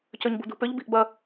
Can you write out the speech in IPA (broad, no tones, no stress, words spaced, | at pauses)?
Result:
cøɲbṳdṳpʏʎ bi̤ʔbɐ